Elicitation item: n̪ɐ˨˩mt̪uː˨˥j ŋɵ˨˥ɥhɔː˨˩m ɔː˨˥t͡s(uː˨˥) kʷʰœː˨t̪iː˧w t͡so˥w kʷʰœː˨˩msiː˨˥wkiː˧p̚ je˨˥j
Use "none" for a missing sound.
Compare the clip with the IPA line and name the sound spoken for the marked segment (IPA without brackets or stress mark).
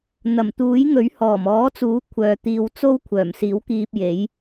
uː˨˥